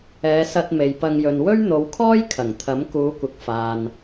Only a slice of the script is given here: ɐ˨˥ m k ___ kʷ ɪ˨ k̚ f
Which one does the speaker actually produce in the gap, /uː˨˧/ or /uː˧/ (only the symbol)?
uː˨˧